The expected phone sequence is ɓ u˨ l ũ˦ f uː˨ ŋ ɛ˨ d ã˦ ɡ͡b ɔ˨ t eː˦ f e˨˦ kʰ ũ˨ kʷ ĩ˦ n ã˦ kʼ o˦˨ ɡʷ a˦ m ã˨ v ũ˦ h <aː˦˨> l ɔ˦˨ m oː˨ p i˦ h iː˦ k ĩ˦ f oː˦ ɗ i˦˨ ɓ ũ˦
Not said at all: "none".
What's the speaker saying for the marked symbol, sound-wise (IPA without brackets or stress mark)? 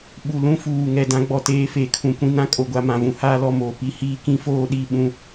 aː˦